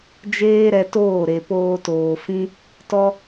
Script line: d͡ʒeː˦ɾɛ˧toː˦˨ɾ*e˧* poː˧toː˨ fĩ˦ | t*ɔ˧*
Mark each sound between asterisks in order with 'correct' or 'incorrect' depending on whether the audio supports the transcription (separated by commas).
incorrect, correct